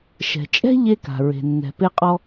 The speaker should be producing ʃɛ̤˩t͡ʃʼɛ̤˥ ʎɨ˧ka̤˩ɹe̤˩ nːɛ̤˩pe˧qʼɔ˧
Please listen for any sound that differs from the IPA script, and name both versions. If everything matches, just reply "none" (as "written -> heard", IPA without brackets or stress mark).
ɨ˧ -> e˧